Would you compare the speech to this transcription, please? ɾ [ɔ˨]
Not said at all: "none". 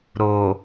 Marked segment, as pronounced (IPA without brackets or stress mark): o˨